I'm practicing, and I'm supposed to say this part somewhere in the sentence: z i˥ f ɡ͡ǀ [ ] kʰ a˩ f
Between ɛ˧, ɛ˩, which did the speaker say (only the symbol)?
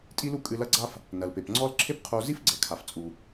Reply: ɛ˩